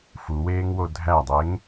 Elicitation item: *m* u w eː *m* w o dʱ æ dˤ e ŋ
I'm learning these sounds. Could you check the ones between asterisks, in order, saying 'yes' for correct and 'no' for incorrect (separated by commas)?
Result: no, no